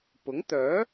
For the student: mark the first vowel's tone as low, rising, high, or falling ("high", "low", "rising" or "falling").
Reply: rising